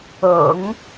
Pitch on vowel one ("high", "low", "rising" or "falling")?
low